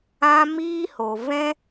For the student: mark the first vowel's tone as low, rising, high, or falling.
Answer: high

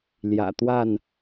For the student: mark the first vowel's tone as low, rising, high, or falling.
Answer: low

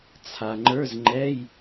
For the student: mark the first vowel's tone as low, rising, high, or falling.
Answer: low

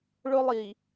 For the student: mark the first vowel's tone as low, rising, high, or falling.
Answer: high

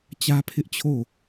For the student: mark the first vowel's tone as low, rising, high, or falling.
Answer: high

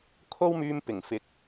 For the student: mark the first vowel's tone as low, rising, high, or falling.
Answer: high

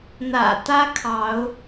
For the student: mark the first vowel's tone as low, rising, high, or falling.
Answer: low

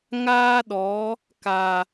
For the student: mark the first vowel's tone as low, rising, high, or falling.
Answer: high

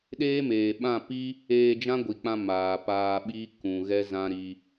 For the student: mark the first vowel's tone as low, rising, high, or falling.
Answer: high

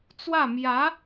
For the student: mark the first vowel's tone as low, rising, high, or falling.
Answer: falling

